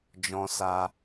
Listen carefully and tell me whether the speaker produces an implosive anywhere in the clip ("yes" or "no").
no